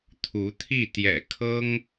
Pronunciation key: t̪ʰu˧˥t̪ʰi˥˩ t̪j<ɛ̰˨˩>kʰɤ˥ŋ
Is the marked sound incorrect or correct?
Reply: correct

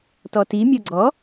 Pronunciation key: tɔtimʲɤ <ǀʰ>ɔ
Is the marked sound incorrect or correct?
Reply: incorrect: ɡ͡ǀ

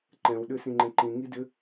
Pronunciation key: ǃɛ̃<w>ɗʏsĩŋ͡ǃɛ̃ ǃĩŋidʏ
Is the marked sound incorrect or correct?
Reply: correct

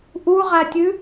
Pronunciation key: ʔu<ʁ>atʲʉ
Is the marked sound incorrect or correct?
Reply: correct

